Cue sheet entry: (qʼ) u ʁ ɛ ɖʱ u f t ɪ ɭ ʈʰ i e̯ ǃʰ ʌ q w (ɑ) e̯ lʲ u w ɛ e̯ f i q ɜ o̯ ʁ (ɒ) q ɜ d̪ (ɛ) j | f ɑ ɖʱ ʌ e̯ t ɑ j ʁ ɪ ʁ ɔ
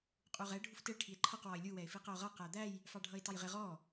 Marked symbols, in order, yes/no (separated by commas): yes, no, no, no